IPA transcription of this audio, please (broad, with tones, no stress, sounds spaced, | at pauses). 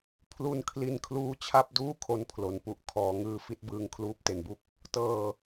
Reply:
pʰ l u˧ n kʰ l i˧ n kʰ l uː˦˥ t͡ɕʰ a˥˩ p̚ d uː˥˩ kʰ o˧ n pʰ l o˩˦ n p u˨˩ ʔ kʰ ɔː˩˦ ŋ ɯː˧ f i˦˥ t̚ b ɯː˧ ŋ kʰ l uː˦˥ p̚ t e˨˩ n b u˥˩ k̚ | t ɤː˨˩